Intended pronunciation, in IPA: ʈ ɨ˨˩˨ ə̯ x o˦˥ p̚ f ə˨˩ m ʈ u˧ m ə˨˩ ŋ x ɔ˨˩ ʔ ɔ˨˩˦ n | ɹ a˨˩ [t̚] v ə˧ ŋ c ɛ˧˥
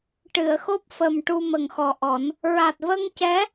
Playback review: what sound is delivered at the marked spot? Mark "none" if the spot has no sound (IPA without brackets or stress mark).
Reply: t̚